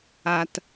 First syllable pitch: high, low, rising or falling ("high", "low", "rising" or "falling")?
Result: low